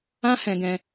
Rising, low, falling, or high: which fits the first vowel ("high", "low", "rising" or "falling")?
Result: high